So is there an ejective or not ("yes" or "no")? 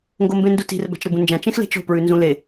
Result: no